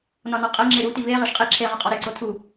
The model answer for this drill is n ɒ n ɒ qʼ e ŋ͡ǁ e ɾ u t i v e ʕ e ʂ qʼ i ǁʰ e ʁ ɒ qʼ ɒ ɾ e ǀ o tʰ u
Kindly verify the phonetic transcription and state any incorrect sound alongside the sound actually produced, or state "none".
ʕ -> ʁ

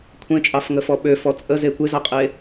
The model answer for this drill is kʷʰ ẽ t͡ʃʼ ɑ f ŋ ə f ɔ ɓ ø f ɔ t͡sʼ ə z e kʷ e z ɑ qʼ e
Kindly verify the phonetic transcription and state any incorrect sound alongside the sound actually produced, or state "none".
none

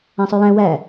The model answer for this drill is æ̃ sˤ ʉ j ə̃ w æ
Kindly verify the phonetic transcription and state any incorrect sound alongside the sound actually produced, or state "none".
ə̃ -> æ̃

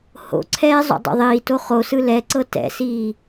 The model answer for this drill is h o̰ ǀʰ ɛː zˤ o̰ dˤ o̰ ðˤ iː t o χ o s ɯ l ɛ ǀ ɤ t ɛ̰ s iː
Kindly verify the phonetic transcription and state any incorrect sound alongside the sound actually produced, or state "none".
none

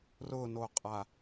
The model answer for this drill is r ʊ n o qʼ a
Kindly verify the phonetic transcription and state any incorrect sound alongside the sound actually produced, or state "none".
none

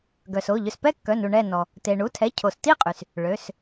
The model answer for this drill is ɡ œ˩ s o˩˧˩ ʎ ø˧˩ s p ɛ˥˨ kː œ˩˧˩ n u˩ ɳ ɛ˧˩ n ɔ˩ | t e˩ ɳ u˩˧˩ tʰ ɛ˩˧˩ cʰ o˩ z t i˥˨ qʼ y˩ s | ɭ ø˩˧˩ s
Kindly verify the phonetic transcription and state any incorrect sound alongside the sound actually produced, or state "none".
z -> s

